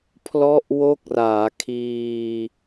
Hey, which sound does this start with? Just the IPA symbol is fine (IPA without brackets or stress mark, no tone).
pʰ